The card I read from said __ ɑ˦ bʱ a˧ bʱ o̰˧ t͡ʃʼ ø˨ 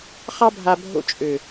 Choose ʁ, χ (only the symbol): χ